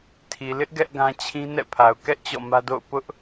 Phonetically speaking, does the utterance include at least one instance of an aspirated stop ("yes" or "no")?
yes